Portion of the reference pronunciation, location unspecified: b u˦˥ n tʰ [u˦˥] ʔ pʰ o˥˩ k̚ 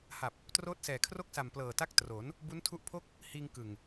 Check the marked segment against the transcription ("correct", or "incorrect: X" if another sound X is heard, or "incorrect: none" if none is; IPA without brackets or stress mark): correct